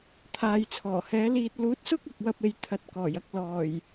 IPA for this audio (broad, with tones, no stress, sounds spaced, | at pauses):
t̪ʰ aː˨ j t͡sʰ ɔː˨˩ h ɛː˨˥ l iː˧ t̚ l uː˨˥ t̚ s ʊ˥ k̚ ɐ˨˥ k̚ w ɐ˥ p̚ e˧ j t̪ʰ ɐ˨˥ t̚ k ɔː˨˩ j ɐ˥ k̚ l ɔː˨˩ j